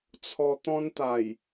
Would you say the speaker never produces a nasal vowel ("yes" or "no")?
no